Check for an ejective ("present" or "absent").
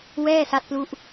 absent